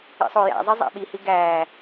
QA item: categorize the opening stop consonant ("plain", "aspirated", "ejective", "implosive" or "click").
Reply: implosive